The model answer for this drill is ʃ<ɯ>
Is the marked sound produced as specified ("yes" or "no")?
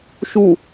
no